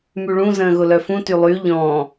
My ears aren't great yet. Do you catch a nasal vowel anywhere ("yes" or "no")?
yes